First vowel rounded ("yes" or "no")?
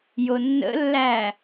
yes